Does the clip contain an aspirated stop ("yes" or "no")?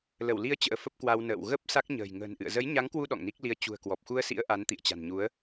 no